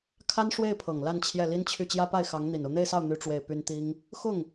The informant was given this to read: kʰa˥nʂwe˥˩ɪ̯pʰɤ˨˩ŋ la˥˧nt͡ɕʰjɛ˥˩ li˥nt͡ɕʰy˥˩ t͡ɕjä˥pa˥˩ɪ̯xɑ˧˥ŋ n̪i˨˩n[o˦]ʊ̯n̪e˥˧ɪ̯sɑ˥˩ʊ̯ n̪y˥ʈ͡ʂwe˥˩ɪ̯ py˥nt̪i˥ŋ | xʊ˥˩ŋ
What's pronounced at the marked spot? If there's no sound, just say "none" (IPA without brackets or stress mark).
o˦